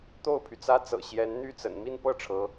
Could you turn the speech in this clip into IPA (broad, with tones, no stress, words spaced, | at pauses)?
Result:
t̪o˥˩ʊ̯pʰy˩t͡sä˥t͡sɤ̰˨˩ ɕjɛ˧˥n n̪y˥˩t͡sə̰˨˩n mi˥˧npɤ˥˩ ʈ͡ʂʰɤ˧˥